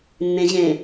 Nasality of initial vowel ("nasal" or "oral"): nasal